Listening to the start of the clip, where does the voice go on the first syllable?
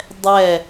falling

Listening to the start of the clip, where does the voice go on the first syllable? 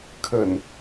low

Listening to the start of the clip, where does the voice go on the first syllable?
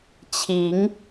rising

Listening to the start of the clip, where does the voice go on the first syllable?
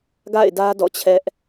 falling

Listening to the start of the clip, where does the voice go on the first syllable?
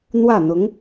falling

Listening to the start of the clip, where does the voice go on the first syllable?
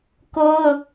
high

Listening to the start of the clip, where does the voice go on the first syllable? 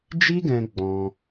high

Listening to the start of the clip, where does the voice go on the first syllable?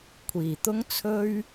low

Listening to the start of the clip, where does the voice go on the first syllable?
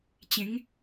rising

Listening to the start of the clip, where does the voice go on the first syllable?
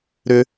high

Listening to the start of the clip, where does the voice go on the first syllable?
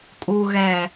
low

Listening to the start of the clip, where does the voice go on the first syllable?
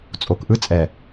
low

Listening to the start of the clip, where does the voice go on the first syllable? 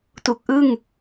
low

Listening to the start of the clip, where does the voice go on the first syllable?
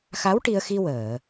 rising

